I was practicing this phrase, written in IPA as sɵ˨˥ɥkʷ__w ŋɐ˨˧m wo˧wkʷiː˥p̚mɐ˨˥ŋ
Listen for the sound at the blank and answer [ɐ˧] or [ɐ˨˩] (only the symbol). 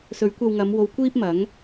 ɐ˧